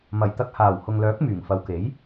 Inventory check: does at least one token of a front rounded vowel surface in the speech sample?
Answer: yes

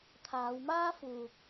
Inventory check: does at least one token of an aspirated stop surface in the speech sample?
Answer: yes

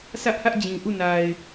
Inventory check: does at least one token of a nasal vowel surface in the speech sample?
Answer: yes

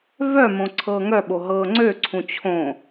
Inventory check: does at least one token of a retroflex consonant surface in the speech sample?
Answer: no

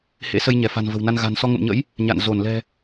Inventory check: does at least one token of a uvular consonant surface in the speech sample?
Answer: no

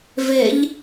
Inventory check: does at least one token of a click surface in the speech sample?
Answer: no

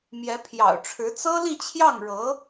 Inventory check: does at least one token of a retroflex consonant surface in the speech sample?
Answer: yes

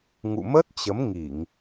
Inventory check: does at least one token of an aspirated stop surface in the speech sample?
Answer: no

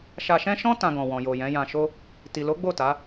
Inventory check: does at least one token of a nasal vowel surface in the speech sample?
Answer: yes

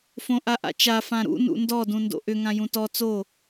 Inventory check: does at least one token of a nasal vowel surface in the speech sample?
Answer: yes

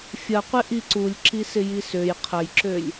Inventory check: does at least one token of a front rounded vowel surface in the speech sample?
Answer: yes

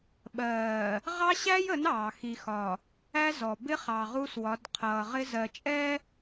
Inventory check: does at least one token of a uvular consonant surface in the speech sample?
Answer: yes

